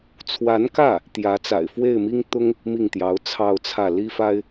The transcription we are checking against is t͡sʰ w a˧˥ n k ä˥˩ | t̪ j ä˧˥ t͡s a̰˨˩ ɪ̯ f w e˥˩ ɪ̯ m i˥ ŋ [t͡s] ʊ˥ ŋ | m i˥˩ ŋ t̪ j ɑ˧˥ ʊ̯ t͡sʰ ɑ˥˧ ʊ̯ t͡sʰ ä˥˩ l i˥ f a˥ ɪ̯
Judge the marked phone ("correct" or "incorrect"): incorrect